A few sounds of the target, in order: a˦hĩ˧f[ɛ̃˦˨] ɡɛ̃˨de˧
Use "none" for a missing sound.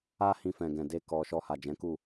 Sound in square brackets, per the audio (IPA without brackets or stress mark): ɛ̃˨